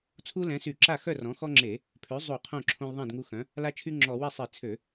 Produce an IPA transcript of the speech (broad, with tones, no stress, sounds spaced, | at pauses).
t͡sʰ u˦ l ɛ̃˩˥ s y˧˩˧ ǁ a˥˩ x œ˥˩ r ɔ̃˩˥ x ɔ˦ ŋ͡ǁ e˧˩˧ | pʰ ø˩˥ zˤ u˧˩˧ qʰ õ˥˩ ǁʰ õ˦ l ðˤ ɛ̃˥˩ d ŋ u˦ x œ̃˩˥ | l a˦ t͡ʃʰ y˦ ŋ͡ǁ ɔ˧˩˧ w ɛ˥˩ sˤ i˧˩˧ t͡sʰ ø˧˩˧